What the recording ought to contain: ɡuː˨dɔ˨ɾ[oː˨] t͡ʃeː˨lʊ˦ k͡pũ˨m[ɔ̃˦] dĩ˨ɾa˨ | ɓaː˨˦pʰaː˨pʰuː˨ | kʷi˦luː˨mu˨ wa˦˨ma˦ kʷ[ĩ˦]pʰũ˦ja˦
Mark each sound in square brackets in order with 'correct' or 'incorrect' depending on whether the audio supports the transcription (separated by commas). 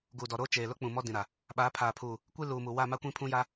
incorrect, incorrect, correct